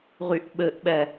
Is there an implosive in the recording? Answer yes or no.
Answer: yes